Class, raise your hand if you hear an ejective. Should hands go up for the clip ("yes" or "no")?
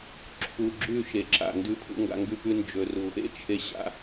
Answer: no